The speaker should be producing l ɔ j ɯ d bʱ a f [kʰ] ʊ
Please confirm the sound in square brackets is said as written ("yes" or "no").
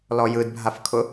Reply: yes